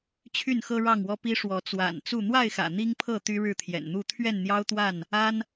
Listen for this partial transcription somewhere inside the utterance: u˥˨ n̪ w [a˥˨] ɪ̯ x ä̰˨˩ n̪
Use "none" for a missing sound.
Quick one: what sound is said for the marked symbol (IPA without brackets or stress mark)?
a˥˨